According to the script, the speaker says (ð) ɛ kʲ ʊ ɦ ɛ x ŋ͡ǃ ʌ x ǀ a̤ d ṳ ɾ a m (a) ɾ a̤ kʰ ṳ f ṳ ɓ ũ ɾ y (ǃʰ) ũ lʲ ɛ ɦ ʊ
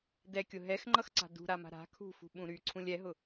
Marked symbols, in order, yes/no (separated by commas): no, no, no